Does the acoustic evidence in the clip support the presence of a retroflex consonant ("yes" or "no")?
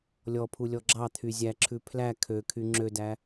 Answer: no